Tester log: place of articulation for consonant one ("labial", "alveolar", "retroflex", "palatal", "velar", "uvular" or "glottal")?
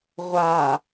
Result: uvular